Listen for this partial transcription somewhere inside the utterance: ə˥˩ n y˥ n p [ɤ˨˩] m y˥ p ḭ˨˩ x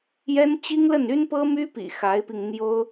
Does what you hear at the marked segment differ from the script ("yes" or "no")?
yes